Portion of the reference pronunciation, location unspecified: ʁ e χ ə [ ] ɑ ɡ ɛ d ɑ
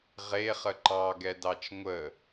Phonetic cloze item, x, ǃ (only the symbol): ǃ